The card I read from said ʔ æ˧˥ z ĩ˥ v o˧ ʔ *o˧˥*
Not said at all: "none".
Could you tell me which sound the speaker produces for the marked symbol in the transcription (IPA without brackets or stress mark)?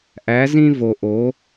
o˧˥